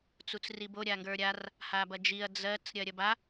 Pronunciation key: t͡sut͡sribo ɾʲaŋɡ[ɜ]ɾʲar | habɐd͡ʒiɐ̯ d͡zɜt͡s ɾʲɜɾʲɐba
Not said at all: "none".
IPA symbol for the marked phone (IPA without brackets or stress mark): ə˞